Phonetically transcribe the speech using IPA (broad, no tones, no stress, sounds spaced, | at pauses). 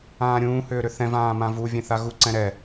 ãː ɾʲ ũː h ʏː ɾ ʏ θ ɛ̃ v ãː m ã v u vʲ ɛ̃ θ a ɣ u ǀ ɛ̃ ɾ ɛ